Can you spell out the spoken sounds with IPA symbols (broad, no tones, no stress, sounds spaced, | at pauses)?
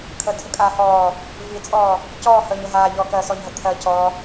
kʰ ə tʰ ə kʼ aː h ɔː | v i t͡sʼ ɔː | c ɔː h əː ɲ ə ɦ aː ʎ ɔː k ɜ s ɔ ɲ ɦ ə t̪ʰ ɜ c ɔ